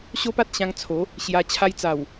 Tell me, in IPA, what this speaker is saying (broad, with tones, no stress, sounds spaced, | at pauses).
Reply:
ɕ o˦ p a˦ t̚ ɕ ã˧ ŋ t͡sʰ o˨˦ | ɕ j a˧ t͡ɕʰ a˧ j t͡s a˨˩ w